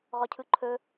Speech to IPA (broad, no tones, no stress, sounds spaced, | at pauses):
ʁ ɔ cʰ ɯ ǃʰ ɵ